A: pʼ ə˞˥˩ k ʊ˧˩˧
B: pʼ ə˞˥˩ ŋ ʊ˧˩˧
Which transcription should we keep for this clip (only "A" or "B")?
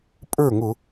B